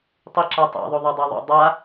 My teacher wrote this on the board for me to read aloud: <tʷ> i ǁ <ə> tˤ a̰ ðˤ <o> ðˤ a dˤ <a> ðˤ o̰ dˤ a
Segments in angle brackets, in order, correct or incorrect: incorrect: tˤ, incorrect: a, correct, correct

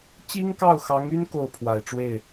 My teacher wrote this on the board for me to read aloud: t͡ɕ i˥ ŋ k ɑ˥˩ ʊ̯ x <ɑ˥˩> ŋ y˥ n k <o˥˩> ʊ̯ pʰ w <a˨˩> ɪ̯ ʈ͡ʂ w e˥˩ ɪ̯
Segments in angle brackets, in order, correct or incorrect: incorrect: ɑ˧˥, correct, correct

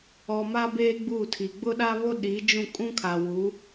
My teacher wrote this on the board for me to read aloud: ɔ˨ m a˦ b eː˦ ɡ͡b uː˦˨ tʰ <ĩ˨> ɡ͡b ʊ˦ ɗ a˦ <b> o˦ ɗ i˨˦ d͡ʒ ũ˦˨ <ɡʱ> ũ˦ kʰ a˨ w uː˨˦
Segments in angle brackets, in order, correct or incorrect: incorrect: i˨, incorrect: β, incorrect: kʼ

